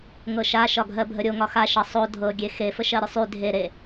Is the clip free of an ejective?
yes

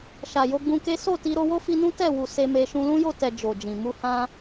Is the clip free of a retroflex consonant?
yes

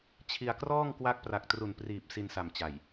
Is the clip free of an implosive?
yes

